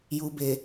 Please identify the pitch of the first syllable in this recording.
low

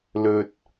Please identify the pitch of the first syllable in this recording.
low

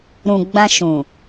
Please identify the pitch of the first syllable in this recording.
low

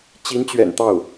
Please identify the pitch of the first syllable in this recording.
rising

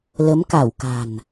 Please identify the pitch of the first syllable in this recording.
rising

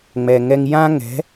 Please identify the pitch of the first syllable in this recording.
low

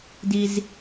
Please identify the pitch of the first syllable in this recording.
low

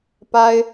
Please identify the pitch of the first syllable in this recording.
high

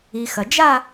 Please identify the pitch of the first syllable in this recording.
low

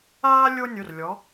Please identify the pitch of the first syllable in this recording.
high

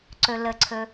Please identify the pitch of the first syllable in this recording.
low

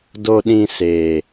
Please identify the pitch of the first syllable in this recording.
low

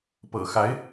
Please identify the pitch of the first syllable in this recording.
low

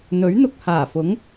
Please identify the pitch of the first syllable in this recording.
rising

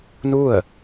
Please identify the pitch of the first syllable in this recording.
falling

